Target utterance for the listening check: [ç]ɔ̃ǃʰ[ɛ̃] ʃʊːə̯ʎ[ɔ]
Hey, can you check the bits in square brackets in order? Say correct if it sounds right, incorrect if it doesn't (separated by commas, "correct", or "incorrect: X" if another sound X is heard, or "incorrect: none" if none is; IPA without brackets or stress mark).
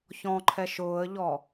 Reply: correct, incorrect: ɛ, correct